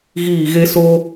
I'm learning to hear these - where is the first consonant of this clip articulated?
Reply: velum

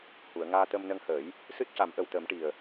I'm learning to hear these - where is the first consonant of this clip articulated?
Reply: throat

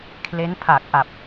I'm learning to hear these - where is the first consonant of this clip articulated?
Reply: velum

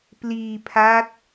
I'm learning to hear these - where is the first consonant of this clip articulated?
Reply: lips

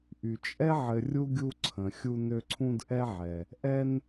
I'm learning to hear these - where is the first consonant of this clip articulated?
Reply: throat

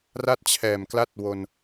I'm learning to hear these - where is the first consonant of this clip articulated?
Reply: tongue tip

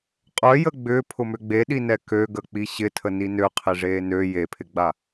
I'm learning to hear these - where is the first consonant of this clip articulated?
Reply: uvula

